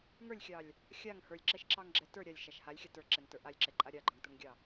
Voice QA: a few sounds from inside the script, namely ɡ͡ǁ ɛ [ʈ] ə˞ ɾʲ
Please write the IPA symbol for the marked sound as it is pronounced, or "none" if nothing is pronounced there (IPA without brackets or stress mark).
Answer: t